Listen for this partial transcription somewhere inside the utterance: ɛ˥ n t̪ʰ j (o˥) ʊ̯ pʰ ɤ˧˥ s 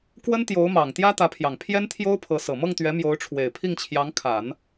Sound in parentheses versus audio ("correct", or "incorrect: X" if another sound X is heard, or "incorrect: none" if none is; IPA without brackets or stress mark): correct